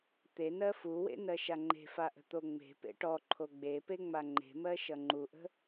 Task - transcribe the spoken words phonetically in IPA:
t̪ e n ɜ f u w ḛ n ɜ ʃ a ŋ͡ǃ e̤ f a ʔ ə̤ t̪ o ŋ͡m e̤ p ḛ ʈ ɔ ǃʰ o ɡ͡b e p e ŋ͡m a ŋ͡ǃ e̤ m ɜ ʃ ʌ ŋ͡ǃ u ʔ ə̤

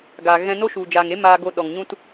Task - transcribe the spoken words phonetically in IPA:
ɡ a˨ ɣ ɛ̃˧ n o˦ ʃ u˨ d͡ʒ aː˨ ŋ e˨˦ m aː˧ ɡ o˧ ɗ ɔ˨ ŋ ɲ ũ˦ t

